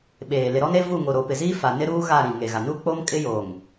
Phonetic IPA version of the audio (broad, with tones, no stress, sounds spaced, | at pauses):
ɓ eː˨ l ɪ˨ ɾ ɔ˦ n e˦ v u˦˨ ŋ o˨ ɾ o˨ p ɪ˨ z iː˦ f a˨ n ɪ˦ ɾ uː˦ ɣ a˦˨ ɾ ĩ˨ ŋ e˨ ɣ a˨ n u˦ k͡p o˦ m kʼ ɪ˦ j oː˨ ŋ